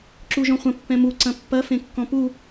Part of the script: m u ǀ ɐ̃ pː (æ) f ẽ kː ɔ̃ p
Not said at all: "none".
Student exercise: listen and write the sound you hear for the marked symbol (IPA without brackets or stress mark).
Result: ɐ